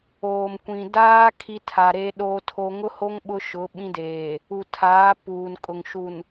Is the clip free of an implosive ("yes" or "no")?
no